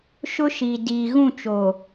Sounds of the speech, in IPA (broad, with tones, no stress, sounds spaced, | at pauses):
ʃ ʊ˦ ʃ i˨ d iː˨ ɣ ũ˦˨ t͡ʃ o˨